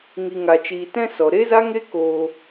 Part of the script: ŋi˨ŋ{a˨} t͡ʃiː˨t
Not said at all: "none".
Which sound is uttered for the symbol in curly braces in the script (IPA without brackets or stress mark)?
a˨